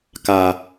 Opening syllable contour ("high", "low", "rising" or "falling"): low